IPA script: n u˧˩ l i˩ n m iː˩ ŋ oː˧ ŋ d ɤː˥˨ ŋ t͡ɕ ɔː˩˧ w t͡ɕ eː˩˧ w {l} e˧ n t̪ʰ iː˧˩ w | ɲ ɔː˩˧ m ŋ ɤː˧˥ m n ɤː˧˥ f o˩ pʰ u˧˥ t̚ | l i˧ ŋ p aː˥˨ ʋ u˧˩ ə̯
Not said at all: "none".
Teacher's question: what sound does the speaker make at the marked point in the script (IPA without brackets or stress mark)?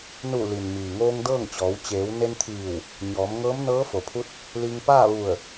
n